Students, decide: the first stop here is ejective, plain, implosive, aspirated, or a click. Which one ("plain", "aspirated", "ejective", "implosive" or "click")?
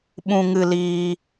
implosive